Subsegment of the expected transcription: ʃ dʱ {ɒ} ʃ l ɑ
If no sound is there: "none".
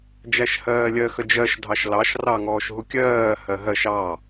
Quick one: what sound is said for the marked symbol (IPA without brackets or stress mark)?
ɑ